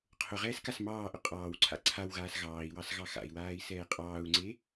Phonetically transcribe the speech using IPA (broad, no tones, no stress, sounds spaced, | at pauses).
qʰ ʊ ʁ ɛː s k a s m ɑː ʔ ʊ qʼ ɑː w ǀʰ a̰ ǀʰ a w ɣ aː s ɣ ɑː i̯ w ɑ s ɣ ɑ x a̰ i̯ w aː i̯ s ɛː qʼ ɑː u̯ ŋ͡ǀ e